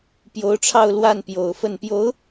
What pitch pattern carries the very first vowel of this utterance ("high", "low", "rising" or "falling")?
rising